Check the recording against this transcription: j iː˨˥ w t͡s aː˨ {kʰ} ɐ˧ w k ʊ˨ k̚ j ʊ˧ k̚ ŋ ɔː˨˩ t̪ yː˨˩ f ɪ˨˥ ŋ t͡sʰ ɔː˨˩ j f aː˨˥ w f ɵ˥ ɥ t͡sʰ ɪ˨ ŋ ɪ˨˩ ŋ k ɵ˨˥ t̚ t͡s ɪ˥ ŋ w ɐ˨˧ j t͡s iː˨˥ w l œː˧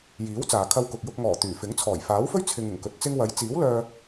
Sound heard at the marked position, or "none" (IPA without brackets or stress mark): kʰ